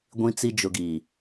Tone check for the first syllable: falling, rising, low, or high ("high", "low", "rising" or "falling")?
low